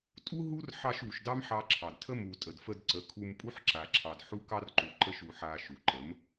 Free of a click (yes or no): no